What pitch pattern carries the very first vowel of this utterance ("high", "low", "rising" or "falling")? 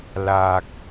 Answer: low